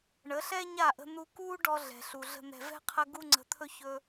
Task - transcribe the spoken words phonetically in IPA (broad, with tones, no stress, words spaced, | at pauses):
ɳə˨˦ɬɛ˦ɲa˦˨ʔə̤˧ n̪u˧ kuː˦ɖɔ˧ ɮɛ̤˨ɬu˨ɮə̤˦ n̪ɛ̤˨vɛ̤˦qʰə˧ ɡu˦ŋ͡ǀə̤˨t̪ʰɵ˦ çɵ˧